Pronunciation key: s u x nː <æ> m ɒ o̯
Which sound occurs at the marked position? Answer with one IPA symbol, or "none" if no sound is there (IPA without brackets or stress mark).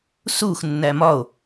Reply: æ